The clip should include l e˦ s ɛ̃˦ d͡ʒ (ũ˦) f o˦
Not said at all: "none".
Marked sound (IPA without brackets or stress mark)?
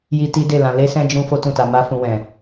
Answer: ũ˦